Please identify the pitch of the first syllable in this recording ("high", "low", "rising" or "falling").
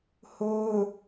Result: high